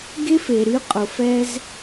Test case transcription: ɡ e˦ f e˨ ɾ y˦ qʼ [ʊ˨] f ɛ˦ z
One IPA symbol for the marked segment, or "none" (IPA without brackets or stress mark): ʊ˨